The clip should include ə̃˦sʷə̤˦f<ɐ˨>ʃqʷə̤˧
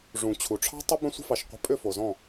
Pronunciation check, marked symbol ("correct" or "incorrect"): incorrect